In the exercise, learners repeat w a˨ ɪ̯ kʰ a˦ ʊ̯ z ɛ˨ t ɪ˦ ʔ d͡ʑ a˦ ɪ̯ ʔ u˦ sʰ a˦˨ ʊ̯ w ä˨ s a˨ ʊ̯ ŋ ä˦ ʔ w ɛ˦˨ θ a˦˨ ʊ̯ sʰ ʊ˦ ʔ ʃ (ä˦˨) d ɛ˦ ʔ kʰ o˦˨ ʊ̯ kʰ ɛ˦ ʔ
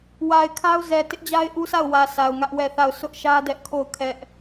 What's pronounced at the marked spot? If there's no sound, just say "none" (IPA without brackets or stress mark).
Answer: ä˦